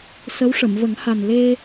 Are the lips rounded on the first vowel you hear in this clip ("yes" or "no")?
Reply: no